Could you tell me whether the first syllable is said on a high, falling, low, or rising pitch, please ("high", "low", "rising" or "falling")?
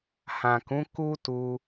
low